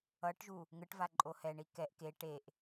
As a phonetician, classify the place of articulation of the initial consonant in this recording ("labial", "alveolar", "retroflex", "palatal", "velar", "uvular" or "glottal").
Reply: retroflex